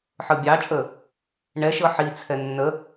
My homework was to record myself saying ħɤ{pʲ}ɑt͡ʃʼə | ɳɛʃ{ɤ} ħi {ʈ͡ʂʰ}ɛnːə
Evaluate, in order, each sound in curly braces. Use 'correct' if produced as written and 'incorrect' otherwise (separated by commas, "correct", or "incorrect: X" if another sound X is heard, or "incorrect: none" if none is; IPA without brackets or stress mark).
incorrect: bʲ, correct, incorrect: t͡sʰ